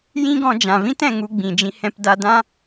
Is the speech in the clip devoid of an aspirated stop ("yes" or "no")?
yes